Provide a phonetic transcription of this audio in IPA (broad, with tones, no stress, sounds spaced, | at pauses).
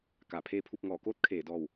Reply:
k a˧˩ pʰ eː˧ pʰ u˧ p̚ ŋ ɔː˧˩ k oː˥˨ t̚ kʰ eː˧˩ d ɔː˧˩ w